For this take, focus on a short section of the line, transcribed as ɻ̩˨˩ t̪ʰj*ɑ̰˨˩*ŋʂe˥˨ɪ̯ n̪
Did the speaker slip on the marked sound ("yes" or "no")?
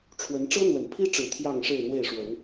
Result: yes